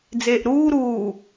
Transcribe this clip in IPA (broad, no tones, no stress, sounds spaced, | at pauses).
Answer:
d͡z eː ʔ ɾ uː ɾ uː